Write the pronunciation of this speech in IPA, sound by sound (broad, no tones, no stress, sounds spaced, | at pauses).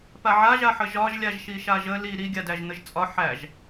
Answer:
p a ʕ a ʒ a ħ ə ʒ ɒ ʒ lʲ a ʒ ʃ i ʃ a ʒ ə l i ɾ i ɡʲ a d æ ʒ n̪ ə ʒ t͡sʼ ɒ ħ æ ʒ